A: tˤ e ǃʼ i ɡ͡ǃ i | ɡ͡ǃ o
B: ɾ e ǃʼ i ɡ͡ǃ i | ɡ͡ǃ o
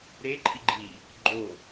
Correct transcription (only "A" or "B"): B